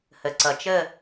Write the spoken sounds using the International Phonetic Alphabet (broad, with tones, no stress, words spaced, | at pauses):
hə˩ǀʌ˩t͡ʃə˦˨